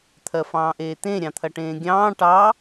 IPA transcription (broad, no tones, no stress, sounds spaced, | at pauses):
t̪ʰ ɜ f ɑ̃ː ʔ eː t̪ ẽ ɾʲ ɑ̃ t̪ʰ ɐ ʈ ẽː ɡʲ ɑ̃ː ʈ ɑ